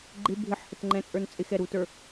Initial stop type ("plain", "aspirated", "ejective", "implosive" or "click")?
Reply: click